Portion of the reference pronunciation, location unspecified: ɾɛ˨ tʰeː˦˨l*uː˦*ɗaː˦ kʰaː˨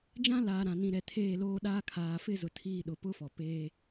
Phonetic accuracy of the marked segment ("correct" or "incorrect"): incorrect